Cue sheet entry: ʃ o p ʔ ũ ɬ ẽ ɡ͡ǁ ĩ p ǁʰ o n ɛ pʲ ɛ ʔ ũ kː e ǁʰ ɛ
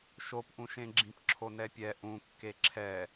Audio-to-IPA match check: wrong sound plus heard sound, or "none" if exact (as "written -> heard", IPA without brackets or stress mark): ɬ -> ʃ